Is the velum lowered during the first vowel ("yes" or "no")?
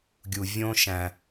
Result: no